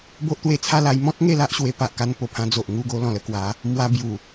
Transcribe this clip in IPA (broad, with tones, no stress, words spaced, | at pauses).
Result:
bo˦ʔt̪we˧t͡sʰa˥˧ la˧jmɔ̃˦t̚ ŋe˥˧la˦ʔɕwe˧ pa˨ʔka˧npo˨˩pʰã˧ d͡zo˨ʔŋu˥˧ ɡo˧ lɔ̃˨˩lə˧kwa˨˦ | mwa˧bju˨˩